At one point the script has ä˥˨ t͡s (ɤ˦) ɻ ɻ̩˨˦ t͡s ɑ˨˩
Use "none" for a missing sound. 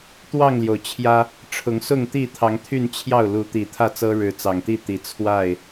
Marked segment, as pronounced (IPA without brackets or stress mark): ɤ˦